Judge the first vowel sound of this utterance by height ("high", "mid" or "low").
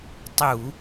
high